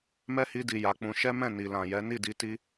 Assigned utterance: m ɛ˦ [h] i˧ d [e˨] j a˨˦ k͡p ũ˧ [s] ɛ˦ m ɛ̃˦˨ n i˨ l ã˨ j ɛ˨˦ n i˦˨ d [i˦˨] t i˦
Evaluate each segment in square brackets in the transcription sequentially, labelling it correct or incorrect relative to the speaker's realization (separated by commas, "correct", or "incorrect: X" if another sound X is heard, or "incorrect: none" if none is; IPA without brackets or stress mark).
correct, incorrect: i˨, incorrect: ʃ, incorrect: i˧